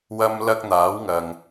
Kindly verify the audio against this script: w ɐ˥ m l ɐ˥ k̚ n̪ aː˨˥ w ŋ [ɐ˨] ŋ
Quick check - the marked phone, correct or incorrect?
correct